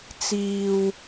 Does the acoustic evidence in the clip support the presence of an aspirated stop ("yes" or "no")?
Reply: no